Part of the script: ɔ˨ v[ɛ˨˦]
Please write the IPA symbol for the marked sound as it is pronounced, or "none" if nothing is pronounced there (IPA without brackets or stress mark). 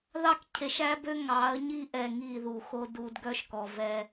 ɛ˦